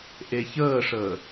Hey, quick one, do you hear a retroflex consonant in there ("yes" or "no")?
yes